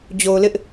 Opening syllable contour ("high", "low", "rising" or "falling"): low